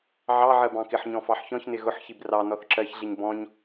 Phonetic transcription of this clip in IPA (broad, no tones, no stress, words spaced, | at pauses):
ʕɑʕɜ bɑ̃kɪħɲɔ̃ fɑħçɔ̃çnɪ ɣʊħçib rɑ nɔθǁɜçɮiɲ bɔ̃ɲ